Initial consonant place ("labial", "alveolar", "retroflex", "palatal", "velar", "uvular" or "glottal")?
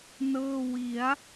alveolar